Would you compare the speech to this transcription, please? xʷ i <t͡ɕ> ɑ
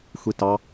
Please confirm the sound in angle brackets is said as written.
no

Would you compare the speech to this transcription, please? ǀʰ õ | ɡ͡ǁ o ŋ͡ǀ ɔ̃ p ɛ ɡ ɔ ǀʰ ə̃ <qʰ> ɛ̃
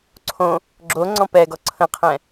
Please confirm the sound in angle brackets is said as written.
yes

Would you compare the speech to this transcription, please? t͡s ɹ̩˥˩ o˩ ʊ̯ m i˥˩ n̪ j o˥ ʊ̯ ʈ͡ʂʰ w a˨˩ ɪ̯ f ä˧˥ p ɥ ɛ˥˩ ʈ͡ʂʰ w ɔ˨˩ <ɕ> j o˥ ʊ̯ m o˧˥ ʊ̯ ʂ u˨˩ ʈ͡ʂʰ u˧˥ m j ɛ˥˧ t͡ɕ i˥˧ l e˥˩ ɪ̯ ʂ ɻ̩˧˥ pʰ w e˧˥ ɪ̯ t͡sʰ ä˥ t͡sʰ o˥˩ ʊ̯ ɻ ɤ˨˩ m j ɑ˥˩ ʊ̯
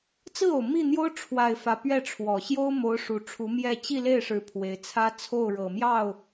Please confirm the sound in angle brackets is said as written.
yes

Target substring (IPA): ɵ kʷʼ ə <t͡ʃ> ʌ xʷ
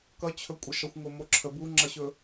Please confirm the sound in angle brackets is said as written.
no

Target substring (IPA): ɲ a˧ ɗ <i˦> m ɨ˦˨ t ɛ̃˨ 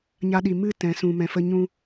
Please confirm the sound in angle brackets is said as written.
no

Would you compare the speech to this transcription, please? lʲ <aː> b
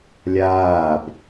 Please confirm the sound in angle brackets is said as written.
yes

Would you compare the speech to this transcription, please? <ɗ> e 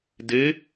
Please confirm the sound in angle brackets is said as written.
no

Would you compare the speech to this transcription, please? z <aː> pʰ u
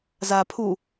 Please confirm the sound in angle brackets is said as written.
yes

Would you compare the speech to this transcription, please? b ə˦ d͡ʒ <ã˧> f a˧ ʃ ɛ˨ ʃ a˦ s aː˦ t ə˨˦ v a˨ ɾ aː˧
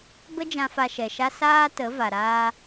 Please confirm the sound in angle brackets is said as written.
yes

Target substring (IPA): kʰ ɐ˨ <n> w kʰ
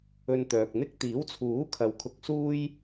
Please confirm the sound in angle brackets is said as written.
no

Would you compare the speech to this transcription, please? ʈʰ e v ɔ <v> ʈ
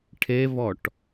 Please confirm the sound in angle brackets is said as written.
no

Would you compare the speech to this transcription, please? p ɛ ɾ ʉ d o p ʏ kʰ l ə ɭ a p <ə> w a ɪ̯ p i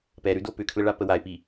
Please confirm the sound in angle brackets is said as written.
yes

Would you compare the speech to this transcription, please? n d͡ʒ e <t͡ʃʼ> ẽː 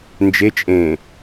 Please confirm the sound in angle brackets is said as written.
yes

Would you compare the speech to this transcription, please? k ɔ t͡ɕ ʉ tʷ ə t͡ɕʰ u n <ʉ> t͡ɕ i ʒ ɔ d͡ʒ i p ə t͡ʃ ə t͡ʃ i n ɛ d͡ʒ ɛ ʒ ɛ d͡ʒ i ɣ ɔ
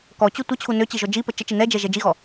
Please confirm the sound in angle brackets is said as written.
no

